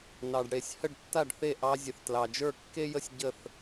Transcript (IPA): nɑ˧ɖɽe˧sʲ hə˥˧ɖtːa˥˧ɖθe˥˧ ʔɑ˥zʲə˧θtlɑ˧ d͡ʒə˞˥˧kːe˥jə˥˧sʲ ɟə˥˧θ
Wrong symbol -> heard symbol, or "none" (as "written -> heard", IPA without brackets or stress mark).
none